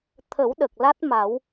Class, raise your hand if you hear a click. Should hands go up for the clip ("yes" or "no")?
no